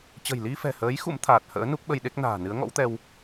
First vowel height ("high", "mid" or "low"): mid